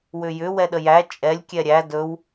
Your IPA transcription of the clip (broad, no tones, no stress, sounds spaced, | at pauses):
w ʏ j ʏ w ɛ ɗ ə j æ t͡ʃʼ ɛ lʲ kʲ ɛ ɾʲ æ d ɵ w